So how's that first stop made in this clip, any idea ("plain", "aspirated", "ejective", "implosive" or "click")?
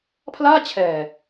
aspirated